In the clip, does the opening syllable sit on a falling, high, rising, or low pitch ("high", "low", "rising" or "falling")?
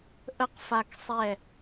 high